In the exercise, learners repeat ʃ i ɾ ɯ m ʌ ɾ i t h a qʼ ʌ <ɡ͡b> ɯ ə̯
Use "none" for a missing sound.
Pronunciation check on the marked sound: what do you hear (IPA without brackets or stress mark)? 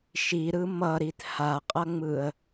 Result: ŋ͡m